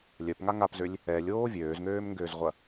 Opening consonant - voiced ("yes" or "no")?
yes